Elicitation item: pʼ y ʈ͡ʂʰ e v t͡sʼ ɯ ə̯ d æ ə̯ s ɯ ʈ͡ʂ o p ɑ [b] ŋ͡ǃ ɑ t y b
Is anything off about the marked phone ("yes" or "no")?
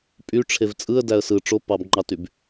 no